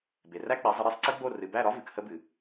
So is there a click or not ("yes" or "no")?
yes